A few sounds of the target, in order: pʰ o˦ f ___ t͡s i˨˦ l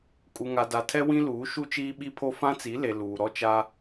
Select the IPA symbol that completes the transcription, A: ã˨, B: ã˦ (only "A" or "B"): B